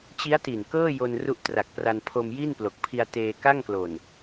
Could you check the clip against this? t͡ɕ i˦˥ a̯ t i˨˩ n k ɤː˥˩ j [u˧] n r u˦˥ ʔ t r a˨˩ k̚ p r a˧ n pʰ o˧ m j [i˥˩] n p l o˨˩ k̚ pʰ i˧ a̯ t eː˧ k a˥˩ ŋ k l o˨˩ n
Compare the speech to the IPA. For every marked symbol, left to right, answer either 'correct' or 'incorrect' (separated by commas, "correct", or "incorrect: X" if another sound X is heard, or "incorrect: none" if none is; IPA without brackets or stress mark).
incorrect: o˧, correct